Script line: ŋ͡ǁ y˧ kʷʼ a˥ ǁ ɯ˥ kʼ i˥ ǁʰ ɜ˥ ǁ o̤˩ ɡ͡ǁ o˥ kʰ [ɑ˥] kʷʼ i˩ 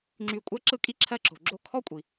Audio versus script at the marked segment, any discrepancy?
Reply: yes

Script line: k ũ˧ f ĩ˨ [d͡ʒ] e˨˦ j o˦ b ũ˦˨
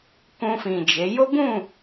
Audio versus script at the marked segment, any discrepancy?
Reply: no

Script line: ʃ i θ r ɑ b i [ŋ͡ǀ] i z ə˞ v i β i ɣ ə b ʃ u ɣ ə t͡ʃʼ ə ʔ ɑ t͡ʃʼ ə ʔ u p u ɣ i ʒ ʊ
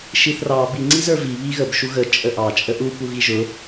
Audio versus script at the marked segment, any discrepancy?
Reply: no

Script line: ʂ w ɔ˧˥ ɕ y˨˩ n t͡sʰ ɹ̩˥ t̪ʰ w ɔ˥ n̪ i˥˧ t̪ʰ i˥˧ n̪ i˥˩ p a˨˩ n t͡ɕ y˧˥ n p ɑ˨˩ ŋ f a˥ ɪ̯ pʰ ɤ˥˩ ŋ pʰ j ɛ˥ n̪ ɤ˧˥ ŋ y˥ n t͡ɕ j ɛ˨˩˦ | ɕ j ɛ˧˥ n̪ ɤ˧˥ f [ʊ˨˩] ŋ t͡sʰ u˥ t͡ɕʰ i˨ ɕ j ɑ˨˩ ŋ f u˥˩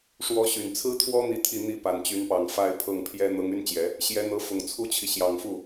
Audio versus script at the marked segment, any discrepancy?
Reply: no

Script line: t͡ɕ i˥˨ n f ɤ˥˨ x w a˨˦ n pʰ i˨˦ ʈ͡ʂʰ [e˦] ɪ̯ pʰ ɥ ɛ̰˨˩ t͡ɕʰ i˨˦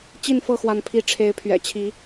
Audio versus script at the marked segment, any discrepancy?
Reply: yes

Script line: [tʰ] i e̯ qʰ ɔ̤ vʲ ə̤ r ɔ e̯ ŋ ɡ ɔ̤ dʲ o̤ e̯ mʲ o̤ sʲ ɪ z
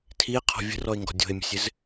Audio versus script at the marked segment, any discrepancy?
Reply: no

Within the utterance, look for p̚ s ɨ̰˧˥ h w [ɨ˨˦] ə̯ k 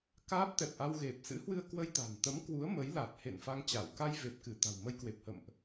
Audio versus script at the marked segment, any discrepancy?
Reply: yes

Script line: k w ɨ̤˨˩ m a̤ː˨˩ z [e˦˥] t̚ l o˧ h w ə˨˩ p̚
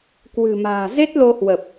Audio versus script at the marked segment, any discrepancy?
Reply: no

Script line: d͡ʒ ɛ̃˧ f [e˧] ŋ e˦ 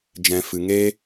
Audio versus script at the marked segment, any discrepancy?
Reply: yes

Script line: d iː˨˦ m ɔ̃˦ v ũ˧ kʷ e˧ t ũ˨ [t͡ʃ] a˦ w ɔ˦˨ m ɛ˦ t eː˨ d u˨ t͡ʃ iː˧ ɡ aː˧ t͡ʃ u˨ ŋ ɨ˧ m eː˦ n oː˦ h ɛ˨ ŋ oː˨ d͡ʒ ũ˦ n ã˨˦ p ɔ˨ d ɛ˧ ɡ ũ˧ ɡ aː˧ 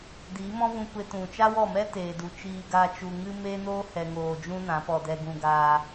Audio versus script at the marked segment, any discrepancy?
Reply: no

